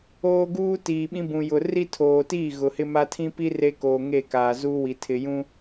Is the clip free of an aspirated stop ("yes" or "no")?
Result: no